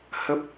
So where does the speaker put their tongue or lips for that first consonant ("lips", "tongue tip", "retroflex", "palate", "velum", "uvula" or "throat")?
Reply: throat